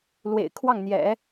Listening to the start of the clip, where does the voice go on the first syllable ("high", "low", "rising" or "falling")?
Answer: low